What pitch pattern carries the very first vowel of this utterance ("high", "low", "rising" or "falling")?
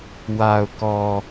low